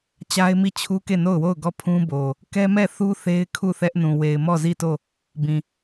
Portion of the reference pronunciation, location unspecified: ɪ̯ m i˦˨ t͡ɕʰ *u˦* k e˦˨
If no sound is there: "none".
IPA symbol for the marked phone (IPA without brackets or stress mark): u˦